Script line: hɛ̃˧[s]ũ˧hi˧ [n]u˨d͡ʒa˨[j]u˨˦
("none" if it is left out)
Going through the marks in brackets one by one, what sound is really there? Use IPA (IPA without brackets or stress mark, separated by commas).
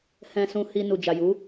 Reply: s, n, j